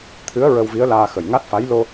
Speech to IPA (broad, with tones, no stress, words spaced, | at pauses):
t̪ʰɨ˧˥ə̯ ɹə˧wvi˧˥ə̯laː˧ xə˨˩jŋa˦˥t̚fa˧˥j lo˧